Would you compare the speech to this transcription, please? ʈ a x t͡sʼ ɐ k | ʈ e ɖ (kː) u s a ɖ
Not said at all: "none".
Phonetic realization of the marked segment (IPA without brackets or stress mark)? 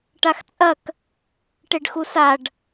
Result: x